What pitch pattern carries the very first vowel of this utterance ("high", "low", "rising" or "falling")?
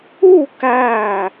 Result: falling